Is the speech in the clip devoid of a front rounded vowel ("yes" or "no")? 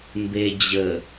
yes